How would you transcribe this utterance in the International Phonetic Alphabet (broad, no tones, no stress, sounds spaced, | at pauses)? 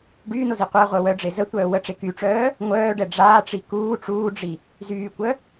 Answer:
ɖ yː n o z i qʷ a ʁʷ œ w œ ɖ͡ʐ e z ə tʷ œː w ə ʈ͡ʂ e k y ʈ͡ʂ œː | ŋʷ œː ɖ ɛ ɖ͡ʐ aː ʈ͡ʂ i k uː ʈ͡ʂ uː ɖ͡ʐ i | z yː kʷ œ